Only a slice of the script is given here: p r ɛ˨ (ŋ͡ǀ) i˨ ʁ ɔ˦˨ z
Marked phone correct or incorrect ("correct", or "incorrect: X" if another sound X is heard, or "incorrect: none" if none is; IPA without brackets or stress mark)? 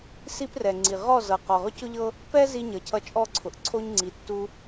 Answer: correct